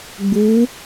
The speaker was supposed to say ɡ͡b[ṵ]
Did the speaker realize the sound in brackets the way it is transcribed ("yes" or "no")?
no